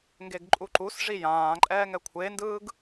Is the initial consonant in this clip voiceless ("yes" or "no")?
no